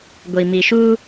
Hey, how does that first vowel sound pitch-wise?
low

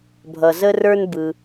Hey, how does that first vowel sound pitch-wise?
low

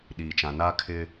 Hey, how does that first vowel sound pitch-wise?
low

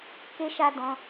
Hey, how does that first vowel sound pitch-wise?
high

